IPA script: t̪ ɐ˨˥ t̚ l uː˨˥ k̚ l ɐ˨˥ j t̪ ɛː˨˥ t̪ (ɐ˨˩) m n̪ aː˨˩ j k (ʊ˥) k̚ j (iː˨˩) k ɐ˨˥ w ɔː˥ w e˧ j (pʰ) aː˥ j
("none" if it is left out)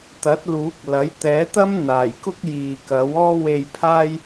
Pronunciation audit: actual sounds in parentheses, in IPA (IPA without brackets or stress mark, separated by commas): ɐ˥, ʊ˥, iː˨, pʰ